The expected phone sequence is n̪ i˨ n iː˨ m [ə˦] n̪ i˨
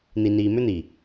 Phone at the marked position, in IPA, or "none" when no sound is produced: ʏ˦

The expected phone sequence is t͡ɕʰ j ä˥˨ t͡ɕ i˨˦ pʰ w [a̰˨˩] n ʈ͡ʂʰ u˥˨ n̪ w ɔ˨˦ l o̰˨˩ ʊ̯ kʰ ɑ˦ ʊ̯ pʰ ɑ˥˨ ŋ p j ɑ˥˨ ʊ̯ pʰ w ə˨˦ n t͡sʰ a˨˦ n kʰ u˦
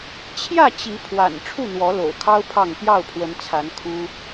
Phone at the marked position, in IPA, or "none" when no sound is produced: a̰˨˩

